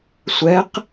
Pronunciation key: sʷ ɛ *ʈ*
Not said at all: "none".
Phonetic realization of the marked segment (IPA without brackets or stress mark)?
q